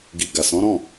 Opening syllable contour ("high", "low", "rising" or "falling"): low